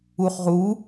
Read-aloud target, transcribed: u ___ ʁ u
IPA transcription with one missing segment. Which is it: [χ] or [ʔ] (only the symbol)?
χ